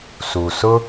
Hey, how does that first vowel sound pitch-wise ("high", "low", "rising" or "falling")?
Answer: low